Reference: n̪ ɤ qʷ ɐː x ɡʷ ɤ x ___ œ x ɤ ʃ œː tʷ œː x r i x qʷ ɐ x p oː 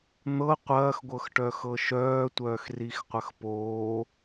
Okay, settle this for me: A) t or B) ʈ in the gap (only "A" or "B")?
B